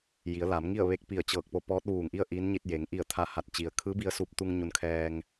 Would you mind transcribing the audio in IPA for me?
j i˩˧ ə̯ l a˩˧ m ŋ i˥˨ ə̯ ʋ e˧ k̚ p i˧˩ ə̯ t͡ɕ ɤː˧˩ k̚ p o˧ p ɔː˧˥ t̚ ʋ uː˧˩ ŋ ʔ i˥˨ ə̯ ʔ iː˧˥ n ɲ i˧ t̚ j e˩˧ ŋ ʔ i˧˩ ə̯ t̪ʰ a˧˩ h a˧˩ t̚ t͡ɕ i˩ ə̯ kʰ ɯː˧˥ b i˧ ə̯ s uː˧ p̚ t̪ u˧ ŋ ɲ u˧ n kʰ ɛː˧ ŋ

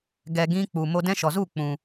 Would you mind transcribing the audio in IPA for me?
ɡ ɛ˧ ɡ ĩ˦ k͡p u˨ m o˦ d ɛ̃˦ ʃ ɔ˨ z u˦˨ k͡p ũ˨

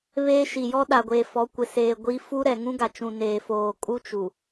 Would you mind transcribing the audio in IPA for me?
β eː˦ ʃ i˨ j ɔ˦ ɗ a˨ ɡʷ eː˨ f ɔ˨˦ kʷ ɪ˨ s eː˨ ɡʷ i˦ f u˦ ɾ ɛ˨ ŋ ũ˦ ɡ a˨ t͡ʃ ũ˨ n eː˨ f oː˨ kʼ u˦ t͡ʃ u˨

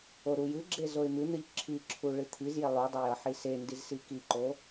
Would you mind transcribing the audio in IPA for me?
o ɾ u j ɨ ɡ͡ǁ e z o ɪ̯ m ɨ n̪ ɨ ʎ ǁʰ i ǁʰ u ɭ ɨ t̪ʰ i z j e lˠ u dˤ o j ʌ ħ i s e n d i z s i k i ǃ o

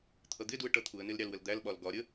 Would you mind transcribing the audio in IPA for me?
t̪ʰ ʌ d̪ ɪ d u ə̯ ʈ ʌ t̪ʰ u ə̯ n ɪ l ɾʲ ɑ l w ə l d̪ æ l ɓ ɒ l ɡ ɒ ɾʲ ə

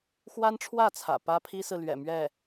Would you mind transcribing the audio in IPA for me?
x w a˥ n ʈ͡ʂʰ w ä˥˩ t͡sʰ ä̰˨˩ p ä˥ pʰ i˥ s ɹ̩˨ l ɥ ɛ̰˨˩ m ɥ ɛ˥˩

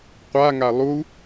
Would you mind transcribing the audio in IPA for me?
qʷ a ŋ a lˠ u

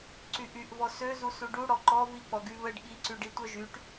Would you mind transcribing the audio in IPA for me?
ǀ y ʔ y ʔ v ɔ s ø z u s u ɖ u ɽ ɔ ǃ ɔ v i k͡p ɔ ɡ y β ə ɖ ɠ i ǀ y ɖ i tʷ œ ʒ y ʈ

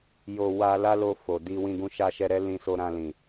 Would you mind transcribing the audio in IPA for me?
j o˧ w a˧ l a˦ l o˧ f o˨ d i˧ w ĩ˧ ɡ ũ˧ ʃ a˧ ʃ ɛ˧ ɾ ɛ˦ l ĩ˧ s o˧ ɾ ã˧ l ĩ˨

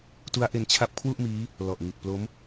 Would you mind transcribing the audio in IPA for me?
t u˦˥ a̯ ʔ e˧ n t͡ɕʰ a˦˥ p̚ kʰ w u˥˩ ʔ m iː˦˥ | l ɔ˨˩ ʔ ŋ i˨˩ t̚ p l o˦˥ m

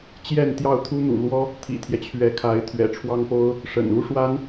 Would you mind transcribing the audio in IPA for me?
t͡ɕ j ɛ˥˧ n t̪ j ɑ˥˩ ʊ̯ t̪ʰ u˥ n̪ ṵ˨˩ l w ɔ˥ | t̪ʰ ḭ˨˩ t̪ʰ j ɛ˦ t͡ɕʰ ɥ ɛ˧˥ kʰ a˧˥ ɪ̯ t̪ʰ ɥ ɛ̰˨˩ ʈ͡ʂʰ w ɑ˥ ŋ p o˥ ʊ̯ | ʂ ə̰˨˩ n u˥ ʂ w a˥ n

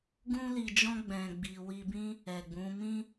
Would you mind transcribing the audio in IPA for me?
ɡ ũ˦ l i˧ d͡ʒ ɔ̃˦ ɡ͡b ɛ̃˧ ɡ͡b i˧ w i˧ b ĩ˦ | ɛ˨ ɡ͡b ũ˨˦ m ĩ˦

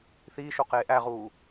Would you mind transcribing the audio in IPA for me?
θ iː ʃ o q eː ʔ æ ʁ uː

